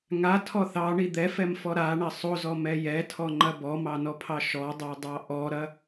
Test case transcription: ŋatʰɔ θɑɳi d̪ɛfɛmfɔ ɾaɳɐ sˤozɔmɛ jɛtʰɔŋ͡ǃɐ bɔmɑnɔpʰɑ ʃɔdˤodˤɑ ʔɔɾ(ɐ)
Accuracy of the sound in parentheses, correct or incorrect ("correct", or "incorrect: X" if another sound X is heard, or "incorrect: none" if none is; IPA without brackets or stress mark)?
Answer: correct